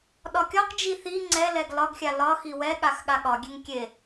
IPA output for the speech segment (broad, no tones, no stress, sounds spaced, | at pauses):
ɗ ɒ kʲ ɒ q d͡ʒ i θ i ŋ͡ǀ ɛ l ɛ ɡ l ɒ ɡ xʲ a l ɒ x i w ɛ ɠ a x ɠ a ɠ ɒ ɡʲ e ŋ kʲ e